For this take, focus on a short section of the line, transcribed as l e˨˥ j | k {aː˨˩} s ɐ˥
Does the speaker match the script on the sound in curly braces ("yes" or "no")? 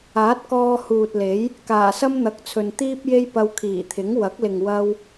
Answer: yes